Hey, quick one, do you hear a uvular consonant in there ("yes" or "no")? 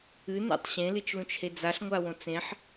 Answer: no